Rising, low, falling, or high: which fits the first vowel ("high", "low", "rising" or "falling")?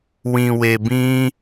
low